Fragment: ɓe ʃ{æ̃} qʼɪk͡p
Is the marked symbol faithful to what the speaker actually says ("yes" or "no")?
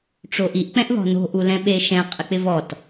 no